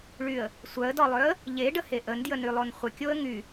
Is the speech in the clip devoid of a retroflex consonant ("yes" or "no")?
no